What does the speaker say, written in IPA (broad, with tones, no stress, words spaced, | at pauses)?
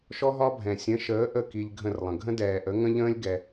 ʃɔ˦ɦɒ˦bʱɛ̃˨ sʲə̃˨˦ʃəː˨˦ ʔə˦˨ ki˧ʎ ɡʱə̃˦˨rlˠə̃˨ ɡʱə̃˦dɛː˨ʔə˨˦ ŋə̃˦ʎə̃ː˦lʲ ɡɛ˧